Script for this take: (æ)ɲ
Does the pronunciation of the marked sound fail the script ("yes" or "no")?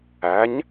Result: no